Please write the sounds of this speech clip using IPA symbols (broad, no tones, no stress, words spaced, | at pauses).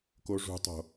koʐṳtˤo̤